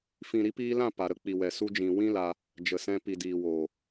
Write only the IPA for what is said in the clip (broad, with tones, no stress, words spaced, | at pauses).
fĩ˨ ɾi˨˦piː˧lã˦˨ pa˨ɾə˦k͡pi˨ wɛ˨su˧d͡ʒĩ˨ wĩ˦la˧ | d͡ʒə˨sɛ̃˧ pi˨diː˨woː˨